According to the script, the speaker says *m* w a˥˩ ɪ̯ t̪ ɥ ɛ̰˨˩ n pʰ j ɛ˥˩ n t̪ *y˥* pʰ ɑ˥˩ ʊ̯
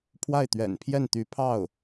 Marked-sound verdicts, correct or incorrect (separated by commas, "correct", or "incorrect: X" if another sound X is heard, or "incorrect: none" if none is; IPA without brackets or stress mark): incorrect: pʰ, incorrect: y˧˥